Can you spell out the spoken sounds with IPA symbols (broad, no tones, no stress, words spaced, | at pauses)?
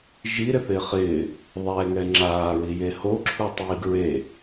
ʒiɾɪθɪː χɪː | ðˤɛŋɛ ŋ͡ǁaːɹije hoǁʰutˤiːɡ ɹe